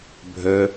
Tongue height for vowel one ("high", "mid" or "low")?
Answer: mid